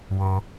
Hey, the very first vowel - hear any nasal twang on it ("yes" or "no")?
no